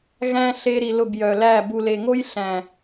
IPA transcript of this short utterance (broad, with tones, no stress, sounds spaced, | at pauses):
ɣ æ̃˦ ɬ e˧ ɾ i˨ l ʊ˦˨ b j œ˨ l æ˦˨ b u˨ l e˨ ŋ o˦ j ɬ æ̃˨